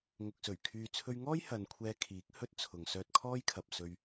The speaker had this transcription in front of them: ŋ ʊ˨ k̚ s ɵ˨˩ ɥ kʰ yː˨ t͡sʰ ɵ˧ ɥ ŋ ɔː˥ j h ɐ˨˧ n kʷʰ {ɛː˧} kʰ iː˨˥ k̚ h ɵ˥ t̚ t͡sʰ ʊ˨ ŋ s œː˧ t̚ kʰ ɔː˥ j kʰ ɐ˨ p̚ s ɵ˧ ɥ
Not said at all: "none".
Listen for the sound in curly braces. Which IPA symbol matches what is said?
ɛː˧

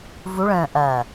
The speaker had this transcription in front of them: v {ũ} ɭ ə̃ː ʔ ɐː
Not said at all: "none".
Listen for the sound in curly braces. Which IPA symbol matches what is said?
u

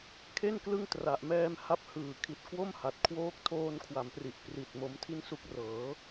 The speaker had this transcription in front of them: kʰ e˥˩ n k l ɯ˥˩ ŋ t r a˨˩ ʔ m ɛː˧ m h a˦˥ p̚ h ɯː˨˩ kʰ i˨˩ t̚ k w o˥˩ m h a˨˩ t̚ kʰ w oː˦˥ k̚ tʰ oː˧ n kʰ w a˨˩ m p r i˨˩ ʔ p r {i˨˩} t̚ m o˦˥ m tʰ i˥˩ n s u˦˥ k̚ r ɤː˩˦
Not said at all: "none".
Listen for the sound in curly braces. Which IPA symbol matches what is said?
i˨˩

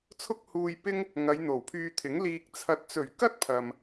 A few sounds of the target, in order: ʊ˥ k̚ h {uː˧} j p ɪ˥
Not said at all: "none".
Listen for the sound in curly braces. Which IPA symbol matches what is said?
uː˧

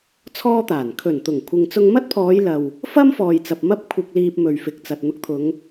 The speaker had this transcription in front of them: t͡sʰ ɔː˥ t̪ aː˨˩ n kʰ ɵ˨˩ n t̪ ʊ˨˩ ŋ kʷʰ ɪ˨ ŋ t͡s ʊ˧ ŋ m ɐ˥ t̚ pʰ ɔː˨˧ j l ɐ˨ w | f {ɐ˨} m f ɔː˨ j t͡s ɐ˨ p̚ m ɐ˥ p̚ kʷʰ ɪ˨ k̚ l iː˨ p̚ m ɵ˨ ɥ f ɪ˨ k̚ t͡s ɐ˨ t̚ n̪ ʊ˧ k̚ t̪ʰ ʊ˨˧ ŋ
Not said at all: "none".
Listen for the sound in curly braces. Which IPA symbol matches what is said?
ɐ˥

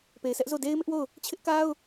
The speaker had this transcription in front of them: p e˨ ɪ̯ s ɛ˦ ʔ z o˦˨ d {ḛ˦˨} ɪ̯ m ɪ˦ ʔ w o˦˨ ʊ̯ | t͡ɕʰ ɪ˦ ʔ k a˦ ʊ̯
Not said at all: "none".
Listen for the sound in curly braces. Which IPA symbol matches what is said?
e˦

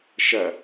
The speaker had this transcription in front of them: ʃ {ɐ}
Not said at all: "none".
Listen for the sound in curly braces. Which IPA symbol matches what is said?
ɐ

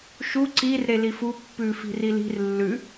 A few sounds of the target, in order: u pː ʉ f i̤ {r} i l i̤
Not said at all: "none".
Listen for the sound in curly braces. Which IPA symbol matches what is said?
r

